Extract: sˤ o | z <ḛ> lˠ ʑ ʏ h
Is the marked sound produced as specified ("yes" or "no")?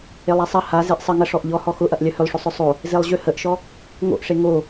no